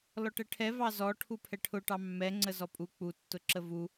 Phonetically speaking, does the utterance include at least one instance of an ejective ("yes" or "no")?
yes